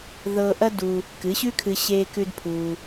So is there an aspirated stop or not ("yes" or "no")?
yes